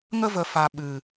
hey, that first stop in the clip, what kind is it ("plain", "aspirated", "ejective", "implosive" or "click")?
implosive